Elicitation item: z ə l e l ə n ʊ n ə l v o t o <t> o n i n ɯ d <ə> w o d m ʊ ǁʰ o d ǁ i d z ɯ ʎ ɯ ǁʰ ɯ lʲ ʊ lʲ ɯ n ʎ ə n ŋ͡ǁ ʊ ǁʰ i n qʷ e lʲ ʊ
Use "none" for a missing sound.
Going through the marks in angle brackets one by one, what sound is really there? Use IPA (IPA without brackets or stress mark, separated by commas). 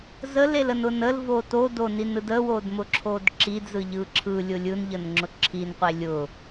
d, ə